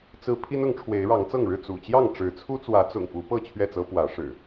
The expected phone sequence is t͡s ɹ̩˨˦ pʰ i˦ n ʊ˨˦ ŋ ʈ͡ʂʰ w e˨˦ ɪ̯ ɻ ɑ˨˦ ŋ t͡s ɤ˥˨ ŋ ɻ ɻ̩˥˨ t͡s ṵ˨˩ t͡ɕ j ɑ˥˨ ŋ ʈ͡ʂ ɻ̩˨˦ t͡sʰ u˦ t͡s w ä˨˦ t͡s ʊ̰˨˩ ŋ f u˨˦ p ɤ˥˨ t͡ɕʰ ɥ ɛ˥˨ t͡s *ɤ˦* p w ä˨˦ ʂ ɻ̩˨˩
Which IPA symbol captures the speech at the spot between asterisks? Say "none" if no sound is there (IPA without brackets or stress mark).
ɤ˦